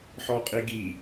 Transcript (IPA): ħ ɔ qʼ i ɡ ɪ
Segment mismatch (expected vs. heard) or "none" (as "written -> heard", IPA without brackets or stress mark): ɪ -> i